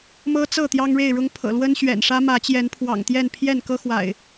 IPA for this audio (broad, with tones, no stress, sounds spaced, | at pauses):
m ɤ˦ t͡s ɤ˥˨ t̪ j ɑ˦ ŋ ɻ e˥˨ ɪ̯ ɻ ʊ˦ ŋ pʰ ɤ̰˨˩ l w ə˦ n ɕ ɥ ɛ̰˨˩ n ʂ ä˦ m ä˨˦ t͡ɕ j ɛ˨˦ n pʰ w ɑ̰˨˩ ŋ t̪ j ɛ˥˨ n pʰ j ɛ˥˨ n k ɤ˦ x w a̰˨˩ ɪ̯